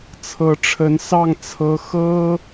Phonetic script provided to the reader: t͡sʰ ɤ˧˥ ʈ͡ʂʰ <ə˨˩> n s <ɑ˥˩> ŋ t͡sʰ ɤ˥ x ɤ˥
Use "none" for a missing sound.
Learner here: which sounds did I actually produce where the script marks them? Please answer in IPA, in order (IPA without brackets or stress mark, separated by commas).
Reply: ə˧˥, ɑ˥˩